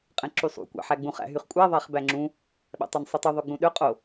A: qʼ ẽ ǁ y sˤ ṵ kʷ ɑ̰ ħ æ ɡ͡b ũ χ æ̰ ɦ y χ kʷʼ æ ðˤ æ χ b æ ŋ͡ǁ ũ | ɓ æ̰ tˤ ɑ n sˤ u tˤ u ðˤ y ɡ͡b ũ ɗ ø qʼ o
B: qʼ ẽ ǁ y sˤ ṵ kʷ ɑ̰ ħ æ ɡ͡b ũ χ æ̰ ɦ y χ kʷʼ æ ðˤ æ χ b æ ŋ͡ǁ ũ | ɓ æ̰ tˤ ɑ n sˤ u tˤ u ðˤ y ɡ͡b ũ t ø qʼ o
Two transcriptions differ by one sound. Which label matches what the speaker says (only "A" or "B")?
A